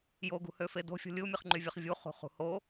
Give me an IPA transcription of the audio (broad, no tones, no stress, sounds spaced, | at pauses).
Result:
j o ɡ ṳ h ø f e d o̤ fʲ o̤ lʲ ɯ u̯ mʲ ɯ χ ŋ͡ǃ y vʲ ø χ vʲ u χ ṳ χ ṳ h o